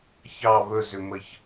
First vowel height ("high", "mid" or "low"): low